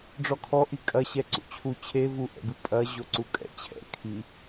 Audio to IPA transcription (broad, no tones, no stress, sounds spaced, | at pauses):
ɖ͡ʐ ɔ kʰ ɔ ʔ i kʼ ɐ ɕ ɛ ǀ ṵ t͡ɕʰ u t͡ɕʰ e v u ʔ ɛ̰ b ɨ pʼ ɐ ʑ o ǀ u kʼ ɛ̰ t͡ɕʰ ɛ̰ kʰ i